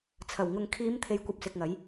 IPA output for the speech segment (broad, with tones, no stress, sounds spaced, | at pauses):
t͡sʰ ɐ˨˩ w ŋ ʊ˨ ŋ kʰ iː˨˧ m t̪ʰ e˨˧ j kʷ ɐ˨ p̚ s ɪ˨ k̚ ŋ ɐ˨˧ j